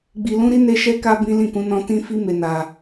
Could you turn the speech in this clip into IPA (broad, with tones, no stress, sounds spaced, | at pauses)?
ɡ͡b i˧ l ũ˦ ɾ i˦ n e˦ ʃ ɛ˦ k a˦ b ĩ˦ l ĩ˦˨ k ũ˧ n ɔ̃˧ t ĩ˦ f i˦ m e˧ n a˧